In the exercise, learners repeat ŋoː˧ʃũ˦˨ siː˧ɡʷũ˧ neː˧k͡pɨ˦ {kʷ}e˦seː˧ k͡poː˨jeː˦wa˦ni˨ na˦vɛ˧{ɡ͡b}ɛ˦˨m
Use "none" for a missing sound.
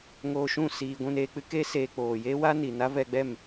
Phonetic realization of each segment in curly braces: k, ɡ͡b

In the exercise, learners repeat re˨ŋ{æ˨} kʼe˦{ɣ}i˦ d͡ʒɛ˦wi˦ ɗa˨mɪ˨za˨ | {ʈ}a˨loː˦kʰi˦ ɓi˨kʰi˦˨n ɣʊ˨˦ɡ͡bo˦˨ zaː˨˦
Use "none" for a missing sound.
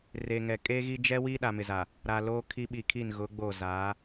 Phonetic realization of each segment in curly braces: ɛ˨, ɣ, ɾ

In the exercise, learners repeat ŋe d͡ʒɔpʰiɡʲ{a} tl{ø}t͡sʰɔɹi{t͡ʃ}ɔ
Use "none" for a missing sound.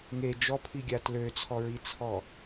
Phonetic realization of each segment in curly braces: a, ø, t͡sʰ

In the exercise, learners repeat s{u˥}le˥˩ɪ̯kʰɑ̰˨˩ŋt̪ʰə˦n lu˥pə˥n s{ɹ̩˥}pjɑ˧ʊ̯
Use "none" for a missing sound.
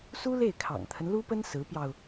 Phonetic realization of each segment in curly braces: u˥, ɹ̩˧˥

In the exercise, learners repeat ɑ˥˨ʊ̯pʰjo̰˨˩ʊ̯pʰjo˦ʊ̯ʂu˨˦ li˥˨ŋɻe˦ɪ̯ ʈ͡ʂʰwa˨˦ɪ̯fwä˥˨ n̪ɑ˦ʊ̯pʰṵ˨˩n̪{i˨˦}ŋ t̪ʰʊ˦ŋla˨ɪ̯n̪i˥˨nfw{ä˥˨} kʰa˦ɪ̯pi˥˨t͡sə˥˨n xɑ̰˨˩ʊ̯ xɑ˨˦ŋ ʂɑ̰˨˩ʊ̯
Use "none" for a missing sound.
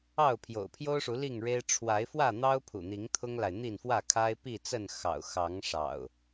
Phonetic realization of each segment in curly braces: i˨˦, ä˥˨

